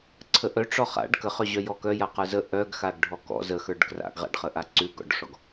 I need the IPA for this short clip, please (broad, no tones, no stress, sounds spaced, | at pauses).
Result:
ǀʰ ə ʔ œ ʈ͡ʂ ɔ χ a̰ ɖ k ə χ œ ʑ œ j ɔ k œ j a q ə˞ z ə ʔ œ ɡ x a ɡ ɖʱ ɔ k ɔ̰ z ə x ə˞ ɖ k r a̰ ɡ ʁ a̰ ɖ χ ə ʔ a ǀ ʉ ɡ ɔ̰ ɖ ʂ ɔ ɡ